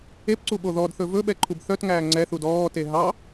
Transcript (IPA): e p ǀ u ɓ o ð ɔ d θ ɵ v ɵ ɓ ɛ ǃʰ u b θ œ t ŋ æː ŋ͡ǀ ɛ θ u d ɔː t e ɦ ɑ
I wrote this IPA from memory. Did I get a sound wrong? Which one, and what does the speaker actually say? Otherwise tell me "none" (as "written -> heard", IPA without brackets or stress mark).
none